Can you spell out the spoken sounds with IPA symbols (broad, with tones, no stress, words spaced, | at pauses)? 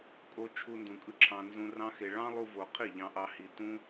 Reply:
kʼo˧ t͡ʃʰu˧ndũ˨kʼɯ˦ǁʰɑ̃˧ nzũ˧ rɑ̃˦xe˧ ɭɑ̃˦lˠu˧ vo˨ qʰi˦˨ʎɑ̃˧ʔɑ˧ hi˨tũ˦